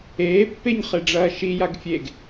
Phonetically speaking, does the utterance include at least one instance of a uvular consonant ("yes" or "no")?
yes